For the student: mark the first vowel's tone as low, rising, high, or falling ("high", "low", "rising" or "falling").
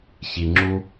low